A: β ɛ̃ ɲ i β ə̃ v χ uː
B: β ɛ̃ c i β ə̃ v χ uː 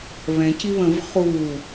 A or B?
B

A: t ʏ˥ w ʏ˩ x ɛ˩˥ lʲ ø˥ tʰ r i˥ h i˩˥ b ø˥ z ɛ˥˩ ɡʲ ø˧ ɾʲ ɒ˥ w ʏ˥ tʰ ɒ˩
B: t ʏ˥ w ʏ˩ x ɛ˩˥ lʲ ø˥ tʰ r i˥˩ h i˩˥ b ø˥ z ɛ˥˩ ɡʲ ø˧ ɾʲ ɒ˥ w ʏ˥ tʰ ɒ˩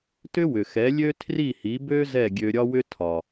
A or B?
B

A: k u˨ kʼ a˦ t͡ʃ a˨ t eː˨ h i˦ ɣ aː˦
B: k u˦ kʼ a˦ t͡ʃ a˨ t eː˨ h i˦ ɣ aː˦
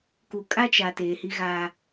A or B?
A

